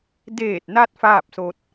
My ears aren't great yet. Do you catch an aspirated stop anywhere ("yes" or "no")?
no